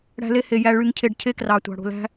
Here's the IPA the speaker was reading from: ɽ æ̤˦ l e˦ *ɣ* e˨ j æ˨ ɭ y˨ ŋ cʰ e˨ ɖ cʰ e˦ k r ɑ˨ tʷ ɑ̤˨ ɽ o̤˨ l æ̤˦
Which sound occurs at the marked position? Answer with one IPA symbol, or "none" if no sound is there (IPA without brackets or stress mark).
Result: h